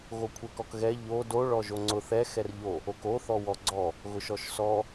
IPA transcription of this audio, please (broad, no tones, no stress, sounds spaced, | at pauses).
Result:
ɣ o kʷʰ ɛ k ɔ k ɣ ɛ ʎ o d o ɭ ɔ ʒ o ŋ͡ǀ ʊ θ ɛ x ɛ r ʎ o | o k o θ ɔ w ɔ ɡ͡ǀ ɔ | ɣ ʊ ʃ ɔ ʃ s ɔ